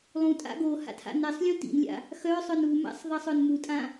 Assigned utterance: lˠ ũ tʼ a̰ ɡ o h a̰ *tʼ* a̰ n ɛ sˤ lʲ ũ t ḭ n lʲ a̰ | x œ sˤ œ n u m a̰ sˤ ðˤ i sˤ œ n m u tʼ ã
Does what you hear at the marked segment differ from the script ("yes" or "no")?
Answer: yes